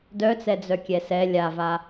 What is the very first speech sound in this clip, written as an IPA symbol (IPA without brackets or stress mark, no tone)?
d